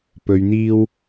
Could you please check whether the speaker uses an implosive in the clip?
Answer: no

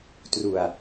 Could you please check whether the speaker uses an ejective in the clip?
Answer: no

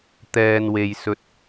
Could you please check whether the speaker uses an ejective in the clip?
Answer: no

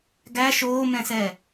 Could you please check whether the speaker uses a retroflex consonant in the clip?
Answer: no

